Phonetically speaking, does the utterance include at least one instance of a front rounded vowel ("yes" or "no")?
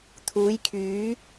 yes